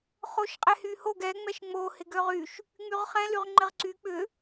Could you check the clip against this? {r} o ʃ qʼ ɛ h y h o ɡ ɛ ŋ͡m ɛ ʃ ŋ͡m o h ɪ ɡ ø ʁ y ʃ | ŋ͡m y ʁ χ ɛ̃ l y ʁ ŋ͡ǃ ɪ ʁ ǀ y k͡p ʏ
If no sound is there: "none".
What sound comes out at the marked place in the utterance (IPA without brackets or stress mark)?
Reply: χ